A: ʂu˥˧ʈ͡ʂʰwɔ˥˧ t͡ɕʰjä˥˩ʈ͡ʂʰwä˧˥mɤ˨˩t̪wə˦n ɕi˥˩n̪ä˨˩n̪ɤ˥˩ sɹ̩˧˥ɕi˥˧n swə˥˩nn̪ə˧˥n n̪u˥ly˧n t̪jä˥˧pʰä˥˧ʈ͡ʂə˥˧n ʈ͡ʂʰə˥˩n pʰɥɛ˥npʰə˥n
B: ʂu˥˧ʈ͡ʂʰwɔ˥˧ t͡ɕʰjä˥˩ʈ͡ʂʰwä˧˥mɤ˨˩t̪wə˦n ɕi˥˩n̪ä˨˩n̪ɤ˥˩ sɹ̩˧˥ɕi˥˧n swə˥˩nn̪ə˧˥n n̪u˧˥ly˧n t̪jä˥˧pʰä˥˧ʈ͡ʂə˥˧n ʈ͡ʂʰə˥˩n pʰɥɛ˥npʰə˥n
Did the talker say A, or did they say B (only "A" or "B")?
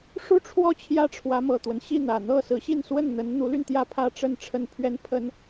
B